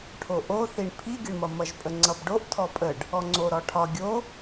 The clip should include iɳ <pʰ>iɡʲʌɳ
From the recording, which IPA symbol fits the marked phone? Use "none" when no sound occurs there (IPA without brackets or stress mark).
pʰ